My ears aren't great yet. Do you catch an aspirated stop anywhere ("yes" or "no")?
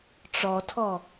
yes